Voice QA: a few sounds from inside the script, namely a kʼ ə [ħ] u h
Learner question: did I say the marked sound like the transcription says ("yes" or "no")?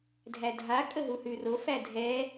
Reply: no